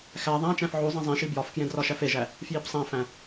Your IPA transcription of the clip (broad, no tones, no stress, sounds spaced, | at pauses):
x æ ðˤ æ̃ t͡ʃ æ̃ f ʕ u zˤ ĩ zˤ ĩ ʃ i b j ɒ f k j ẽ d r ɒ ʃ æ f e ʒ æ | f j i b sˤ æ̃ f æ̃